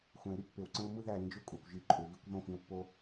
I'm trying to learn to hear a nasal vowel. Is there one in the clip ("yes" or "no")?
yes